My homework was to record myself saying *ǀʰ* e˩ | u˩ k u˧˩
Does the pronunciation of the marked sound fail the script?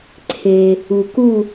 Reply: no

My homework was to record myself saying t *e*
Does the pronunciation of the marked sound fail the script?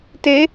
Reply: no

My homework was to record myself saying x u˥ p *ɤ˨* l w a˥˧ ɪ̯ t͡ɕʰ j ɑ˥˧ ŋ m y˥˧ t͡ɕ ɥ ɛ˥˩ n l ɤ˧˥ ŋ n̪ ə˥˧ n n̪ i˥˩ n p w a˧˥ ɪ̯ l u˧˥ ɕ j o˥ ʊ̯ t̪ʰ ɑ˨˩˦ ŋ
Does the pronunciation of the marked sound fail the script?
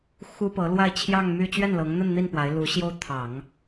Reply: yes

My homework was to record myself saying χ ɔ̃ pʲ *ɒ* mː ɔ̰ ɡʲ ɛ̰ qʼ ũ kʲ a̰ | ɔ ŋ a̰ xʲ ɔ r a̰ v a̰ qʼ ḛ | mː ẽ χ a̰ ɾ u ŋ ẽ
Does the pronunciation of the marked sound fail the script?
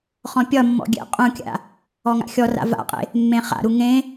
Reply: no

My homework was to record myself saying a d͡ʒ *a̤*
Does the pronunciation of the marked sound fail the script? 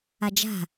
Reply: no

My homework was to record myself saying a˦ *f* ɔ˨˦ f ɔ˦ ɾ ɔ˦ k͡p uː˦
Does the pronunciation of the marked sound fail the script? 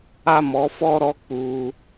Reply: yes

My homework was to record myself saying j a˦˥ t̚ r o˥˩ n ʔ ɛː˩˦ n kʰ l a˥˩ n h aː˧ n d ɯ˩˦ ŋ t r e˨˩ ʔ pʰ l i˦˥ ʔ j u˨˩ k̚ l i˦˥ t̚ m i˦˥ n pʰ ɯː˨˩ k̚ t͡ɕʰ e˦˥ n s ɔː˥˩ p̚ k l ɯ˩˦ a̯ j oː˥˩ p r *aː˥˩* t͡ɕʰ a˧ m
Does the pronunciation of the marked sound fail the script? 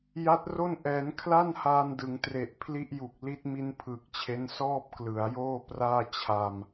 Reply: no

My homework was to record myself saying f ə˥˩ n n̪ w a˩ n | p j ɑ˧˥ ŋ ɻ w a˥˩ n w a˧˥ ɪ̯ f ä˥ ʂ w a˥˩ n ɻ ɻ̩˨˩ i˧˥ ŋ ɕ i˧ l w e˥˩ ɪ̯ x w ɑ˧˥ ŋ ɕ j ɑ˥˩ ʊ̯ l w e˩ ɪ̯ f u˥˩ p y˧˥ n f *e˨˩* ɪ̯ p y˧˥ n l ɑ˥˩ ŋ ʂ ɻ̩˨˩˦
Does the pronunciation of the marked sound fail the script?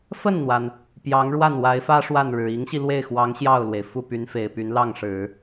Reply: no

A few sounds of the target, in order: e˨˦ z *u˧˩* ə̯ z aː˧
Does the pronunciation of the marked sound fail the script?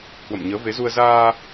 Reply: yes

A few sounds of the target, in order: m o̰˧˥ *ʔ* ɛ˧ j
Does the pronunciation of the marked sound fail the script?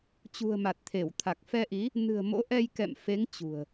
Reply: no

